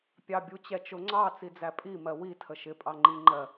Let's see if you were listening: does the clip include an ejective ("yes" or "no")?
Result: yes